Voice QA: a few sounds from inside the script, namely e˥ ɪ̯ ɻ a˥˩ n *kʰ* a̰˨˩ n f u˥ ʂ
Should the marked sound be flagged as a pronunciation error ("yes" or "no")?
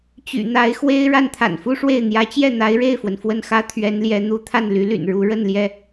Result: yes